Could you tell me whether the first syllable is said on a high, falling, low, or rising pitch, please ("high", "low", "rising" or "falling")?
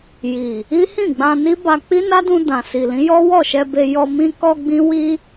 low